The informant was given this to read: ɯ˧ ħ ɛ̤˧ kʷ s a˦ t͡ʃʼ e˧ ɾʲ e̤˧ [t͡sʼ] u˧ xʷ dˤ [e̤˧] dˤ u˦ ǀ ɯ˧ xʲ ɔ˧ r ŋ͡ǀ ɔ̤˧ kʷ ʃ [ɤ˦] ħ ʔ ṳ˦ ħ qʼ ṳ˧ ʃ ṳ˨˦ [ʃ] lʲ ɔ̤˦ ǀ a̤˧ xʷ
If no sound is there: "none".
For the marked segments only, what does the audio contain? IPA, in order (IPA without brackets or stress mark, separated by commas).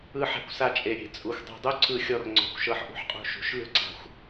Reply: t͡sʼ, e̤˧, ɤ˦, ʃ